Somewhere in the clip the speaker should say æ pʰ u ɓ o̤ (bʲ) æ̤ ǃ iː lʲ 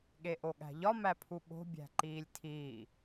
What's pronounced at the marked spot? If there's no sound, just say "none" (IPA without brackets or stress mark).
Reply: bʲ